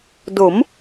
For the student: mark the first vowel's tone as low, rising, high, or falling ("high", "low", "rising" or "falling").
rising